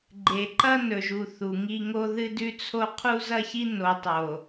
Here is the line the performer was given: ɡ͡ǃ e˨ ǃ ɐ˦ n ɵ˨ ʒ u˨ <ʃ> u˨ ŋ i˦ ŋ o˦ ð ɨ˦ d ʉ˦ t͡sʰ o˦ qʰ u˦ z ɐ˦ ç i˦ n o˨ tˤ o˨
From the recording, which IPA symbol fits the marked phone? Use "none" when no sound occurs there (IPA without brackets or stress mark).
θ